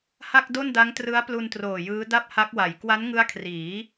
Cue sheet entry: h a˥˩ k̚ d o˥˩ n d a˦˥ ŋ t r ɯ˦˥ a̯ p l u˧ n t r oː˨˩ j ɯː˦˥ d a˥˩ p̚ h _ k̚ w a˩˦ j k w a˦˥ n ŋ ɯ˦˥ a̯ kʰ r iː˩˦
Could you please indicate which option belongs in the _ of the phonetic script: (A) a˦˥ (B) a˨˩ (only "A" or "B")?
A